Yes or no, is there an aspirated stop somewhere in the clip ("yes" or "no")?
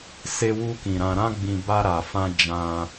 no